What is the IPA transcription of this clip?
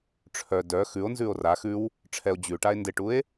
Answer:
ʈ͡ʂʰœ dœ xʉo̯nzʉo̯ ra xʉw | ʈ͡ʂʰɛo̯ d͡ʑʉʈae̯ ndɪʈue̯

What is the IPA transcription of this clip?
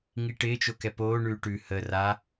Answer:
ŋiʈɪːt͡ʃo kɛpoːɳʉː ʈʉ hə ra

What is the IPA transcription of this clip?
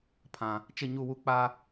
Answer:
pʰã˨ | t͡ʃɪ˦˨ɲu˦˨wu˦ k͡pa˦

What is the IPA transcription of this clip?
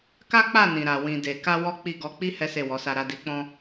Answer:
ka˦k͡pa˦˨nĩ˨ɾa˨ wĩ˨ de˨ka˧ wɔ˦k͡pi˦˨ ɡɔ˧k͡pi˦ hɛ˦se˦˨wɔ˨˦sa˧ ɾa˧di˧k͡pɔ̃˦

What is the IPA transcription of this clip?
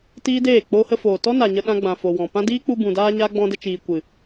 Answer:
tiː˦deː˦˨ k͡po˧hə˧ foː˨tɔ˦ na˨ɲə˧ɗã˧ɡ͡bã˨ fo˨wɔ̃˨pã˦ diː˦k͡pu˧ bũ˨daː˧ɲa˧ ɡ͡bɔ̃˧də˧t͡ʃiː˨ kʷɨ˨

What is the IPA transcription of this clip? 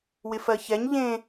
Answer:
wɪfɜçɛɲ ʎẽ

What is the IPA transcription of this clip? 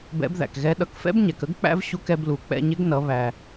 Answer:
bɛ̰˧˥bðæ̰˩kɣɛ˧˥ ɗʌ˩˧kfɛ̰˥bɲɛ˩kə˧˥ɡ k͡pæ̰˥vɕu˧˥kɛ˧blu˩ k͡pɛ̰˧ɲɪ˧˥ɡnʌ˩˧ βæ˩

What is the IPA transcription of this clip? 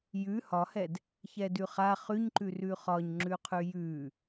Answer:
jʉ hɒhɛd | çɛdʉχa χʉɲǃʉrʉ χɒɲŋ͡ǁʉqʰʉ jʉ

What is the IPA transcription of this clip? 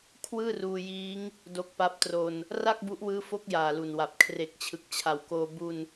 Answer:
kʰwɯː˥˩ruː˧ jiː˦˥ŋ | do˦˥k̚pa˦˥p̚tro˧n | ra˥˩k̚bu˦˥ʔwɯː˦˥ fo˦˥k̚ jaː˨˩lu˨˩nwa˨˩p̚ kʰre˨˩k̚t͡ɕʰɯ˨˩k̚t͡ɕʰa˨˩wkoː˧ bu˧n

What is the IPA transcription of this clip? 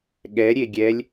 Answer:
ɠɛ ɾʲeɡʲɛlʲ

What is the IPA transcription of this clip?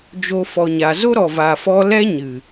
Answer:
d͡ʒo˦fɔ˧ɲa˧ zo˦ɾɔ˨va˨fɔ˧ lɛ˦ɲɨ˨

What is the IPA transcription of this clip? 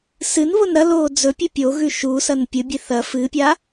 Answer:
sɨnβon ɾɐloː d͡zɵ pʲʉpʲoɣʉ ʃusɐn pʲɨbʲe θɐ fɨpʲa

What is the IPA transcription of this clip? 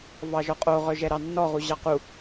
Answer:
vɑʒɔqʼo ʁœʒɛɾɑnːɔ ʁuʑɑqu

